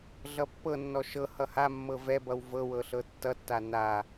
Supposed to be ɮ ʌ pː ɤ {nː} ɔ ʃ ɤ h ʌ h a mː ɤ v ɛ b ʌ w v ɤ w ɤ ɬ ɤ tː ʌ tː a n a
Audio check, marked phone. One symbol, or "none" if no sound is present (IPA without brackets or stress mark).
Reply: nː